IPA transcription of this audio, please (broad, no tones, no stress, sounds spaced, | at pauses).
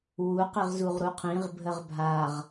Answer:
w u q i ʁ z u ʁ ɾ u qʰ ĩ ʁ bʱ ə ʁ bʱ a ʁ